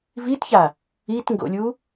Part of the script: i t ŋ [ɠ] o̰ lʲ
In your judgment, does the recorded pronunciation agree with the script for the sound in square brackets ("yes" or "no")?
no